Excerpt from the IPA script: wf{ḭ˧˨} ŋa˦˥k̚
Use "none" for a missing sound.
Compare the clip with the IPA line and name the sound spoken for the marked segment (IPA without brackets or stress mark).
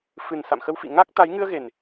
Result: ḭ˧˨